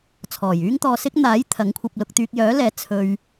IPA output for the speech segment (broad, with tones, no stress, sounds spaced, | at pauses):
t͡sʰ ɔː˨˩ j yː˥ ŋ t̪ ɔː˧ s ɪ˥ k̚ n̪ aː˨˥ j t̪ʰ ɐ˨˥ ŋ kʷʰ ɐ˧ p̚ l ʊ˧ k̚ t̪ yː˧ k̚ j œː˨˥ l ɛː˨˥ t͡sʰ ɵ˧ ɥ